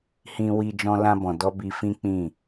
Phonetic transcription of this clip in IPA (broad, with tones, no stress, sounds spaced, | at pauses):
h ĩ˧ w i˧ d͡ʒ ɔ̃˧ l ã˧ b ɔ̃˨ d ɔ˧ b i˧ f ĩ˦ k͡p ĩ˦˨